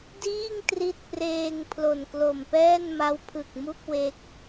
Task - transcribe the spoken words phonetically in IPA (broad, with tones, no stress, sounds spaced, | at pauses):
d iː˥˩ ŋ t r i˦˥ t̚ p r eː˧ ŋ pʰ l o˨˩ n k l o˨˩ m p ɛː˥˩ n m a˦˥ w pʰ ɯ˨˩ k̚ m u˥˩ k̚ w e˦˥ k̚